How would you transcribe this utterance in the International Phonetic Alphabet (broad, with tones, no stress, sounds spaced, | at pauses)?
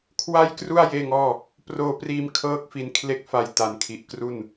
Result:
kʰ w a˥˩ j k r u˥˩ a̯ j eː˥˩ ŋ ɔː˥˩ | p r oː˧ p r iː˧ m kʰ ɤː˦˥ k̚ f i˧ n kʰ l e˦˥ k̚ f a˧ j t a˨˩ n kʰ i˨˩ ʔ k r u˥˩ n